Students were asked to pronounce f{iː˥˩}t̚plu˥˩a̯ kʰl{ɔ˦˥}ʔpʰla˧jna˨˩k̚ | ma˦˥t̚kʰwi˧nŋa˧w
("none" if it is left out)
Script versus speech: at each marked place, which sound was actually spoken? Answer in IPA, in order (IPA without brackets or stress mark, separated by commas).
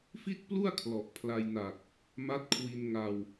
i˥˩, ɔ˨˩